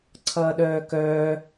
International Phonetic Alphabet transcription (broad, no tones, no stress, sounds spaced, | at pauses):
ǀʰ ʌː ɗ œː k œː